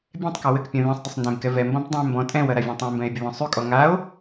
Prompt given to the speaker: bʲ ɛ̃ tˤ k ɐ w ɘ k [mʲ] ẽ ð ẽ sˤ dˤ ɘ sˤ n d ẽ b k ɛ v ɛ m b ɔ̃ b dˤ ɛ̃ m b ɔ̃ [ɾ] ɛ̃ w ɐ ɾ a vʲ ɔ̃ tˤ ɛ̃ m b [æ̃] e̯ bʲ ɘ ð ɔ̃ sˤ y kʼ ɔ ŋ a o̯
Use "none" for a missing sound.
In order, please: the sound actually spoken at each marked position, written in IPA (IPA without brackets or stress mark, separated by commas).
pʲ, tʼ, ɛ̃